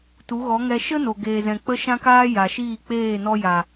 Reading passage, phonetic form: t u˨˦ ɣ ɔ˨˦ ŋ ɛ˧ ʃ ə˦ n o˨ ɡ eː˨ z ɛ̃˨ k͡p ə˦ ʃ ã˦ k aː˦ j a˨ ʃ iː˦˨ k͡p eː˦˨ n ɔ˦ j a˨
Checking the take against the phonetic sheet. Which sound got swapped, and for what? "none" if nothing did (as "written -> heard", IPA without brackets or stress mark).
none